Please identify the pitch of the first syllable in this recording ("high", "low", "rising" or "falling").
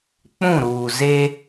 falling